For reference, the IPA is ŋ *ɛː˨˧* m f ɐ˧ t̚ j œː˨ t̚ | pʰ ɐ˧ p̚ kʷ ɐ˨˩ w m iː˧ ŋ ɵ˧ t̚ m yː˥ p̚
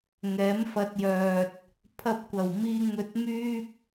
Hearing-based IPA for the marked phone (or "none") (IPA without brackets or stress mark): ɛː˨˥